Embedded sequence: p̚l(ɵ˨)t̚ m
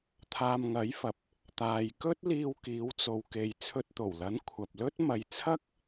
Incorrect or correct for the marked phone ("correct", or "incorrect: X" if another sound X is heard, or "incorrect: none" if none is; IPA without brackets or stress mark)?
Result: incorrect: ɵ˥